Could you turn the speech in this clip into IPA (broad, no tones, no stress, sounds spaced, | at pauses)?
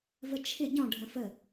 v ə t͡ʃʰ ɪ ɟ ɔ̃ ɖʱ ə̃ f ə